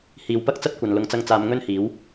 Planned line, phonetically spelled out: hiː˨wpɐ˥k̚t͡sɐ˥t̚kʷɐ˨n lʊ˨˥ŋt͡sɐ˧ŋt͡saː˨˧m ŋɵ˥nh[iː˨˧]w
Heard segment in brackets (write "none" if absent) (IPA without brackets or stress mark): iː˨˥